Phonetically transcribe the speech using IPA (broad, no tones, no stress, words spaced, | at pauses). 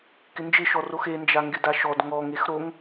kɪnd͡ʒɪʃɔrox end͡ʒa ŋɡɪdaʃɔd ŋɔŋex ɾoŋ